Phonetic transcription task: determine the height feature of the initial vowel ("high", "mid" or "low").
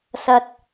low